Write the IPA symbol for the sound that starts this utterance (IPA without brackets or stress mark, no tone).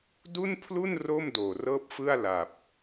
d